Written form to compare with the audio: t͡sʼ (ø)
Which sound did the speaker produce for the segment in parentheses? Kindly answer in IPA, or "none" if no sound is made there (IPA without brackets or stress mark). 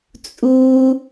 u